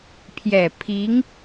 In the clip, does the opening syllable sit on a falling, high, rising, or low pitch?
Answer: low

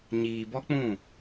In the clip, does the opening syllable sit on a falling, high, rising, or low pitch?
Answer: low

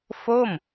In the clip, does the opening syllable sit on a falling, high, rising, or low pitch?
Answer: falling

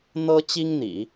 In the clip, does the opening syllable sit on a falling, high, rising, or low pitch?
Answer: high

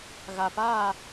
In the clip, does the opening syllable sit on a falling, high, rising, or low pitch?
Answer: low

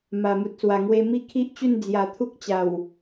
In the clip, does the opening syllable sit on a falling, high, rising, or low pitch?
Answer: low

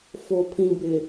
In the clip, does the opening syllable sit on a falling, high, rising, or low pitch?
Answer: low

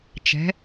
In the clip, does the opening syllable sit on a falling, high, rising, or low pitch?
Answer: rising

